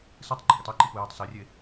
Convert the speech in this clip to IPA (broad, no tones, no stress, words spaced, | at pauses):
sɨtˤɡ͡ǃɔɡetˤ ɛǃipujɔtˤ sɛrʲe